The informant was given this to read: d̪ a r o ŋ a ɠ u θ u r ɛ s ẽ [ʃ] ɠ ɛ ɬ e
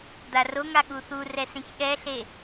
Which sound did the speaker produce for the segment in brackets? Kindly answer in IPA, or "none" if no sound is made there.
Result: ç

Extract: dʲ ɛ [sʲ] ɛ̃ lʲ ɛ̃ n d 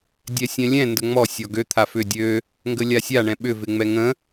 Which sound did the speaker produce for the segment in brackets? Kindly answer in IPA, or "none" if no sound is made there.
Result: sʲ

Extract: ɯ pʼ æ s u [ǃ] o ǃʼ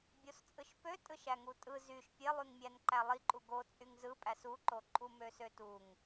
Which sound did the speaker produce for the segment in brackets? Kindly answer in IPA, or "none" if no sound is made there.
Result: ǃ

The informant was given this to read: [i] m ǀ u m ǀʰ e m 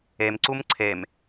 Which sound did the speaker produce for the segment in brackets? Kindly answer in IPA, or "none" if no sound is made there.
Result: e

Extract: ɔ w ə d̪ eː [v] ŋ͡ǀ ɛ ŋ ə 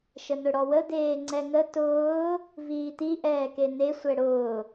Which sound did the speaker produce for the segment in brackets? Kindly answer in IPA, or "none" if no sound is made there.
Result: none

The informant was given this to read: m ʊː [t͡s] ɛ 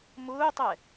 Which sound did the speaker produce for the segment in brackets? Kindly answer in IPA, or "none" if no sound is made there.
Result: tˤ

